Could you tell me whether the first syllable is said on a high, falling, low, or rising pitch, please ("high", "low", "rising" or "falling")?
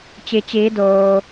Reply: low